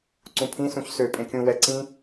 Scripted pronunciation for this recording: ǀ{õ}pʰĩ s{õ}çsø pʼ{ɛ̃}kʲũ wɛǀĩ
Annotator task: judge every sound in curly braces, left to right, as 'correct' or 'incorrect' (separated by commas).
incorrect, incorrect, incorrect